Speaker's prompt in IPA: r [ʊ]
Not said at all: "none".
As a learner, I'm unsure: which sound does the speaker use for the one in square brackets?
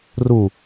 u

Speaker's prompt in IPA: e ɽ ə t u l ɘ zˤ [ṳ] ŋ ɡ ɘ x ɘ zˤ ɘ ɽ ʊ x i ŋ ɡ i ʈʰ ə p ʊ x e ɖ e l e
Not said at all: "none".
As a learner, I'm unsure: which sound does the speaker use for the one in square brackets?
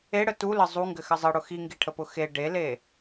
u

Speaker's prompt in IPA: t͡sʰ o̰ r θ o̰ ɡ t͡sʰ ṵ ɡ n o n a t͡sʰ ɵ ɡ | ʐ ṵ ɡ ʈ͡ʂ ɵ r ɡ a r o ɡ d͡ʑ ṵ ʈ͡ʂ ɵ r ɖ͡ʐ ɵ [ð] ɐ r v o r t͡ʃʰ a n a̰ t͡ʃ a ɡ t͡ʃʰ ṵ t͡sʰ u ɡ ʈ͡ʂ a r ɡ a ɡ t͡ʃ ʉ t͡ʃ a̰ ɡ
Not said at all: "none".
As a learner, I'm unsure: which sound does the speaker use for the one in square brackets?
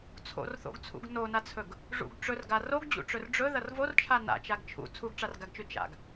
ð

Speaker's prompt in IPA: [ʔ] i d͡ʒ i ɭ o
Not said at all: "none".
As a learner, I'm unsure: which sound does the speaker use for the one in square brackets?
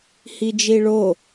h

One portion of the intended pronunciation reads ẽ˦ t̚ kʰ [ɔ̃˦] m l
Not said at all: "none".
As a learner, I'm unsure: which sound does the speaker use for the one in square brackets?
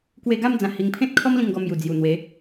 ɔ˦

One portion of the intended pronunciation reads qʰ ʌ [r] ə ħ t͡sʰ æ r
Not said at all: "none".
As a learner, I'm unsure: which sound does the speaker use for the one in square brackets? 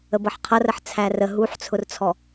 r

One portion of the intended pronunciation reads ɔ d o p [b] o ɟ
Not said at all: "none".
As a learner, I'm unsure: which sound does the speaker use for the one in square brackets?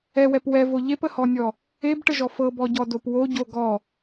w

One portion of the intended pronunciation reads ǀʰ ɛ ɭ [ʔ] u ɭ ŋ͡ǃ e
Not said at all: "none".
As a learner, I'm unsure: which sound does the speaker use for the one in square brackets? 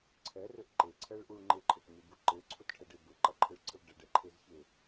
ʔ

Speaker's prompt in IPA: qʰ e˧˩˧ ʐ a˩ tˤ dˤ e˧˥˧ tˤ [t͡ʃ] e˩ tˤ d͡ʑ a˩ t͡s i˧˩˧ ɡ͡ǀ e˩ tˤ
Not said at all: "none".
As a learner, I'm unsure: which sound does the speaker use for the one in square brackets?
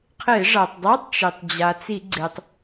t͡ʃ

